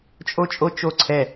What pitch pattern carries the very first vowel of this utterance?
high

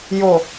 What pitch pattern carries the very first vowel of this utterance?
low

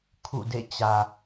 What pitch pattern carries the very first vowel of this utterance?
falling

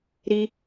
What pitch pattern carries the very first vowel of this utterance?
high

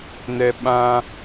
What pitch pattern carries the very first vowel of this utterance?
low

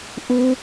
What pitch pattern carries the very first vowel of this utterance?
high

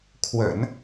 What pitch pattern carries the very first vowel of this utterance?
low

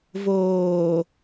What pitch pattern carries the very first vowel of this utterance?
low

